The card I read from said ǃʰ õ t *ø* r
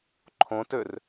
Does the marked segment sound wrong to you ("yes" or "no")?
no